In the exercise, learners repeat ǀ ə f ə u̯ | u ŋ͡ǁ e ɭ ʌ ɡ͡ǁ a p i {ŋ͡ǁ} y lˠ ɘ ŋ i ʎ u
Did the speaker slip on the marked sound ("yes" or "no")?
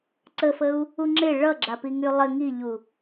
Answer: yes